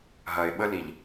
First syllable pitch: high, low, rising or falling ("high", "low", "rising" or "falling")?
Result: low